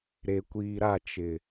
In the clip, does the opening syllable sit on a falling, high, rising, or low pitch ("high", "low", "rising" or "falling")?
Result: low